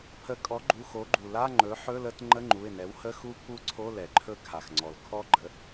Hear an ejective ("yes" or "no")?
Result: yes